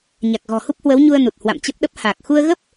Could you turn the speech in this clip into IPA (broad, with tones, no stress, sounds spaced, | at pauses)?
ɲ a˨˩ k̚ ɣ ɔ̤˨˩ h u˦˥ p̚ h w ə˨˦ w ɲ u˧ ə̯ n u˨˩ t̚ h w a̰˧˨ m t͡ɕ ə˦˥ p̚ ɗ ə˦˥ p̚ h aː˨˩ k̚ x u˧ ə̯ ɣ ə˦˥ p̚